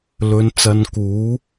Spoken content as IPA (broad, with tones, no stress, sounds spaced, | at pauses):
l ɵ˨˧ n t͡s ɐ˧ n k uː˨˥